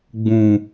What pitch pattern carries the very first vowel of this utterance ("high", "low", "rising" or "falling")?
low